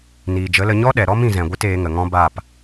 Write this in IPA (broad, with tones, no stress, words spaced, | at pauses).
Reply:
niː˨d͡ʒə˨˦lə˧ ɲɔ˦ɗɛ˨ɾɔ˦m ĩ˧zɛ̃˨ɡʷɨ˦teː˨˦ ŋə˨ŋɔ̃˦baː˦˨p